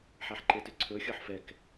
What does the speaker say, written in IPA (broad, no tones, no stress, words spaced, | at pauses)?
ħaħǃetʏǀʰɵ xʲɤħfɛk